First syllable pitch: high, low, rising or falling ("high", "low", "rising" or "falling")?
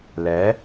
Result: rising